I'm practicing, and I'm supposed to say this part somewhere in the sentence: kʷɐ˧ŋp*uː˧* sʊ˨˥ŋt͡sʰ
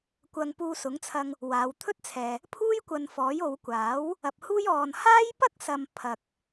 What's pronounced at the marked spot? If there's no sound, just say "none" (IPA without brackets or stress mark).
uː˧